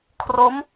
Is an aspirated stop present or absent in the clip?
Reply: present